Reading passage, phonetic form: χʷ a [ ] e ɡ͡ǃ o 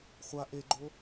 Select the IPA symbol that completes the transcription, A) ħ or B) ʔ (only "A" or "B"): B